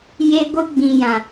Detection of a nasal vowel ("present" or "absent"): present